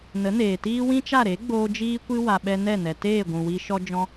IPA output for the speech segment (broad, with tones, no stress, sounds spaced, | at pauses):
n ə˨˦ n eː˨ t iː˦ w ĩ˦ t͡ʃ a˦˨ ɾ e˨˦ ɡ͡b oː˧ d͡ʒ iː˦ kʷ ɨ˦ w a˧ ɓ ɛ˦ n ɛ˦˨ n ɛ˨ t eː˦˨ ɡʷ ũ˨ w i˧ ʃ ɔ˧ d͡ʒ ɔ̃˧